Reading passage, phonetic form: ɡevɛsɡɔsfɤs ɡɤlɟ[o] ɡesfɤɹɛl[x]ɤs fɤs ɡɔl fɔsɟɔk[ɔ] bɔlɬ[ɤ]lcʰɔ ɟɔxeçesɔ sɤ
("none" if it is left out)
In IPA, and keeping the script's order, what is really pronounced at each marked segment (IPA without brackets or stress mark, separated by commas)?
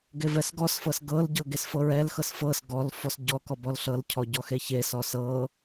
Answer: ɤ, x, ɔ, ɤ